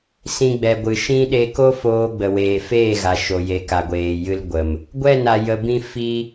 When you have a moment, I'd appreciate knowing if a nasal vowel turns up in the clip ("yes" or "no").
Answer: yes